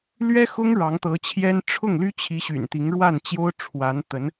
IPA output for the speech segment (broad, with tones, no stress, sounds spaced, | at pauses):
l ɥ ɛ˥ x ʊ˥ ŋ ɻ ɑ˧˥ ŋ t̪ ɤ˧˥ t͡ɕʰ j ɛ˥ n ʈ͡ʂʰ ʊ˥˩ ŋ l y˥ t͡ɕʰ i˧˥ ɕ y̰˨˩ n t̪ i˧˥ ŋ ɻ w a˥˩ n t͡ɕ j o˥ ʊ̯ ʈ͡ʂʰ w a˧˥ n t̪ ə˧˥ n